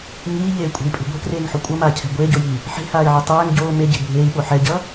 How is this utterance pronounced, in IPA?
ɲ iː ʎ eː kʷʼ ɛ̤ i̯ pʼ e̤ ɡʷ ɛ̤ k r eː ŋ ħ o kʷʼ ʌ m aː cʰ ɛ̤ ɡʷ eː ɟ o j iː | ħ e̤ h aː i̯ ʕ i tˤ ɛː ŋ ɟ oː m e ɟ e̤ bʱ eː i̯ ɓ o ħ ɛ ɟ ʌ

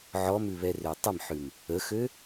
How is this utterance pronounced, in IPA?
ʕ ɔ m ʉ β ɛ r ø tˤ ə m ħ ʉ m | ə x ø

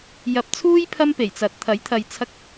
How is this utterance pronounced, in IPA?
j ɐ˨ p̚ t͡sʰ uː˥ j pʰ ɐ˥ m p e˨˩ j t͡s ɐ˨ t̚ t̪ʰ ɐ˨˥ j t̪ʰ ɐ˨ j t͡sʰ ɐ˧ k̚

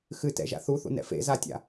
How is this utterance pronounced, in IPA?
x ɨ t ɛ̰ ʒ a̰ θ u θ ṵ n ɛ̰ f ḛ z a tʲ a̰

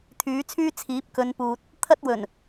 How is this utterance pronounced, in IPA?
t̪ʰ yː˨˥ t͡sʰ yː˥ t͡sʰ iː˨˥ p̚ k ɵ˨˧ n p uː˨ t̚ | t̪ʰ ɐ˥ t̚ w ɵ˨˩ n

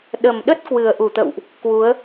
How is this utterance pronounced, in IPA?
ɗ ə˨˩ m ɗ ə˦˥ t̚ k w ɨ˨˩ ə̯ ʔ u˧˩ t̪ ə̰˧˨ w ʔ | k w u˨˦ ə̯

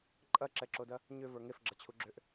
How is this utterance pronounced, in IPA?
ǃʼ ɐ ǁ ɛ ǁ o d ɐ | ɲ ʏ v ə˞ ŋ e f ɡ͡ǁ ɐ t͡ɕʰ u ɡ͡ǁ ʏ ʔ

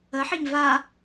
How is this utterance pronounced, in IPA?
ə ħ i ɲ v a

